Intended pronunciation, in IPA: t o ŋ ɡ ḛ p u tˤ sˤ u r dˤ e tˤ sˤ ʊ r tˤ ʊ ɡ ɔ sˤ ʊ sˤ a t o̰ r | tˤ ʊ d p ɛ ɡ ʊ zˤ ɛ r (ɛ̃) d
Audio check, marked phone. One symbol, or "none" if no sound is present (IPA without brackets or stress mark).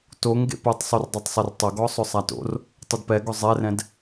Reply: ɛ̃